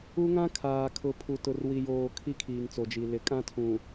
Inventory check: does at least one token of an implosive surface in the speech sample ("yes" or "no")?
no